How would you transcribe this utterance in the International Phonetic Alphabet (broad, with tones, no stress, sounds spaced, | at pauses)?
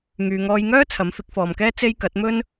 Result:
ŋ yː˨ ŋ ɔː˧ j ŋ œː˥ t͡sʰ ɐ˨˥ m f ɪ˨˥ k̚ f ɔː˨ m k ɛː˥ t͡s e˥ j k ɐ˨˥ t̚ m ɵ˥ n